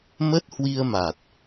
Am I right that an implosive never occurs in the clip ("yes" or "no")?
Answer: yes